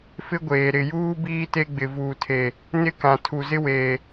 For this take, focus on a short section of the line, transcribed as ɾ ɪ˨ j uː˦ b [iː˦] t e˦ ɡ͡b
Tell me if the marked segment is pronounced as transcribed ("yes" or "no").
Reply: yes